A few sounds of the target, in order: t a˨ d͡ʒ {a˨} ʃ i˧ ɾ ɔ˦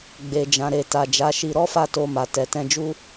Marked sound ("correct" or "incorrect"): incorrect